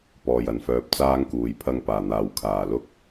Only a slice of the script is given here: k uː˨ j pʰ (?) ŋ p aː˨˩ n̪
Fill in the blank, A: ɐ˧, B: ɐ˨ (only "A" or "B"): A